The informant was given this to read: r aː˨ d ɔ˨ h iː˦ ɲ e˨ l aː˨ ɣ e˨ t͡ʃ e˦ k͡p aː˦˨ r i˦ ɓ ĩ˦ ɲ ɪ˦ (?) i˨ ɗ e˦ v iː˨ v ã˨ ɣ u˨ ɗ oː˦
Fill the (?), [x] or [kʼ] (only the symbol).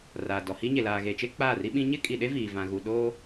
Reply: kʼ